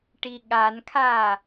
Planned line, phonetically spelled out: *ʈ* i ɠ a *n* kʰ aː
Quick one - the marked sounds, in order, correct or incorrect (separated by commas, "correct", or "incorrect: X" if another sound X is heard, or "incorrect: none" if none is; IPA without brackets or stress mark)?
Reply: correct, correct